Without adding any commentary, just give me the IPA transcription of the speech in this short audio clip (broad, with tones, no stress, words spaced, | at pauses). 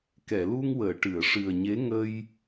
kɛ˨˩˨lu˧ŋwəː˨˩˨ ʈɨ˨˩˨ə̯ʂɨ˨˩ə̯ɲe˧˥ ŋə˧j